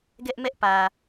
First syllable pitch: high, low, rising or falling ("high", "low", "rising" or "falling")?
high